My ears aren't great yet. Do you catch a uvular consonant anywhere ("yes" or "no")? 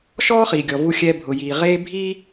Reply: yes